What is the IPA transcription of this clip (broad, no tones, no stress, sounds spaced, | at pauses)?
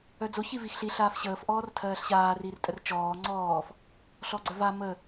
œ d͡z o ç i v i x ɬ i ɬ aː f ɕ əː f ʔ ɔː r tʰ ɜː ɬ ɕ aː r i r tʼ ə r t͡ʃ ɔː ŋ͡ǀ ɔː f | ɬ ɔ ɡ͡ǀ œ v a m ə